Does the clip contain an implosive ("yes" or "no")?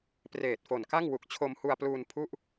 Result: no